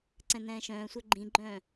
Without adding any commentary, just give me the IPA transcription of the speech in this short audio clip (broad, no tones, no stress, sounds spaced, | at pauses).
ǀ ɛ̃ n ɛ̃ː ʃ œ̃ː sʷ œ ɡ͡ǃ ĩ ɡ͡ǃ œ̃ː